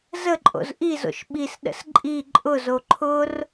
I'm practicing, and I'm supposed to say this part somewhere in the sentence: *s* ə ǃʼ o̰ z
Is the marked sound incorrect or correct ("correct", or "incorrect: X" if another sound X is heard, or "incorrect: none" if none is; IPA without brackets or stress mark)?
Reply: incorrect: z